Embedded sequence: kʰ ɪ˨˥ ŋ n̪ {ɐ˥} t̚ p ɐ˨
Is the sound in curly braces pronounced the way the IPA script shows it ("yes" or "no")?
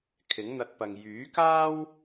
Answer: no